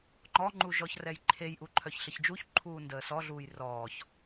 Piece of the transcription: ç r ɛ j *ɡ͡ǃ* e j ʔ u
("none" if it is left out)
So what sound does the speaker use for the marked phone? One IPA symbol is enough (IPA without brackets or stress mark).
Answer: ǃʰ